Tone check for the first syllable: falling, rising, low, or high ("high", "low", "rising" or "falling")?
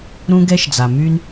high